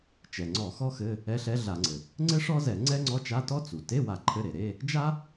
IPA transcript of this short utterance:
t͡ʃ ɛ˩ ŋ͡ǀ ɔ˧˩˧ x ɔ˥ x ɘ˧˥˧ | ɛ˧˥ ɬ ɛ˧˥ ɮ a˧˩˧ ŋ͡ǀ ɘ˩ | ŋ͡ǀ ɘ˥ ʂ ɔ˥ z ɛ˧˩˧ ŋ͡ǀ ɛ˥ ŋ͡ǀ ɔ˧˥˧ t͡ʃ a˧˥˧ t ɔ˥ t͡s u˩ t e˧˥˧ w a˧˩˧ ǃʰ ɘ˧˥˧ ɾ e˩ ɾ e˧˥˧ | d͡ʒ a˥

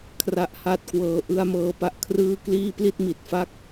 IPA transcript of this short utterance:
kʰ r a˦˥ ʔ h a˥˩ t̚ k w ɤː˦˥ ʔ ɯ˧ a̯ m ɤː˧ p a˥˩ ʔ kʰ r ɯː˥˩ k l iː˥˩ p l i˥˩ t̚ m i˨˩ t̚ f a˥˩ k̚

